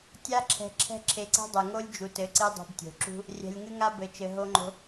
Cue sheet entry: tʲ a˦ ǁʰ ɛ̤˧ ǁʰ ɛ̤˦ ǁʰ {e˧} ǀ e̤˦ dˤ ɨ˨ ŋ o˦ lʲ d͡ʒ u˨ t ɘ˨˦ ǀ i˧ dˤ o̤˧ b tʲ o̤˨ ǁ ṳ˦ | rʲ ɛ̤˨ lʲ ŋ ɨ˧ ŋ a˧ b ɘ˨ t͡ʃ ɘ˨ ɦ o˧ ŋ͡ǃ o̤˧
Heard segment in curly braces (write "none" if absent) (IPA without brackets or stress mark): e˧